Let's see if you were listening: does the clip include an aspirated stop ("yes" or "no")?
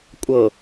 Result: no